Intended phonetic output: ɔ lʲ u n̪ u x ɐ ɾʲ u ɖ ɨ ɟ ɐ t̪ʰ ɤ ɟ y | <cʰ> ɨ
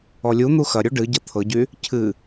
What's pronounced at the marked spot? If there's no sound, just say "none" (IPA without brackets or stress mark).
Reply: cʰ